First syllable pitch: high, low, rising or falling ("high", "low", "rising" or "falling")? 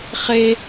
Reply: high